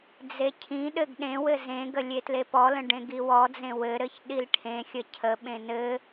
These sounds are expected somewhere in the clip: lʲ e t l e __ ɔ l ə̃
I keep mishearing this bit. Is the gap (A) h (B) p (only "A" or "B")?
B